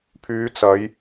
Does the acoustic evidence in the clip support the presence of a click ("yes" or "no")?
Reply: no